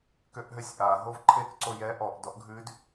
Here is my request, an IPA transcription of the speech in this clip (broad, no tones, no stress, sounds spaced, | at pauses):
k ø ʔ ɦ ø sʲ ʔ a ɦ o v ǃʰ e k ǀ o j ɛ ʔ ɔ ʔ d ɔ ʔ ɡʱ ʉ d